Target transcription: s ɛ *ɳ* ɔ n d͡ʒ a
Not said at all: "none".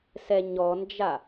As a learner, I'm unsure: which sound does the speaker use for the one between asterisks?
ɲ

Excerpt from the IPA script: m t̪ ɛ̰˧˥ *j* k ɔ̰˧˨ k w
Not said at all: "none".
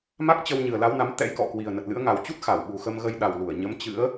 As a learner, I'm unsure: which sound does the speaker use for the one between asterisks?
j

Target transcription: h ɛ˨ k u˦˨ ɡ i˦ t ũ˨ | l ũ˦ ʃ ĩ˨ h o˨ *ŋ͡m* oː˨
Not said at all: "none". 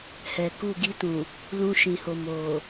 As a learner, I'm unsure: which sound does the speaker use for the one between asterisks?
m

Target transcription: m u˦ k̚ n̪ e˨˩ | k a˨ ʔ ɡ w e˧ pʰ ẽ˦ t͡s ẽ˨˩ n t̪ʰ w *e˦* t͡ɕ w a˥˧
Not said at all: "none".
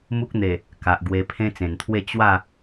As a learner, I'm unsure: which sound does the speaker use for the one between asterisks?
e˥˧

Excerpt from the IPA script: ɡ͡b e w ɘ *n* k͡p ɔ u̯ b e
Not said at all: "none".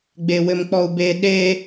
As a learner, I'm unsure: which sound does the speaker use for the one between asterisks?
m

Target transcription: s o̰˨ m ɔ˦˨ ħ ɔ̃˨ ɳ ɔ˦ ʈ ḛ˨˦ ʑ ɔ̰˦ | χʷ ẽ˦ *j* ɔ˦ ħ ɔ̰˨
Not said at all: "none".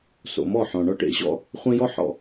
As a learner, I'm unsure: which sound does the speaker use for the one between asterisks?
j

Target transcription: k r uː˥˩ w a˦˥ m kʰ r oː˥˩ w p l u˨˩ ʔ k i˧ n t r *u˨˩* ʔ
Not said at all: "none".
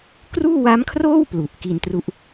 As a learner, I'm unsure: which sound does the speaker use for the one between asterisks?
u˦˥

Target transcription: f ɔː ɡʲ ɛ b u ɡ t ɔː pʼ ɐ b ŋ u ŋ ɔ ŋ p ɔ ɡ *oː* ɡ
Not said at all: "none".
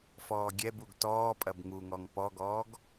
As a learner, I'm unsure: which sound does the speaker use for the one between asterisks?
ɔː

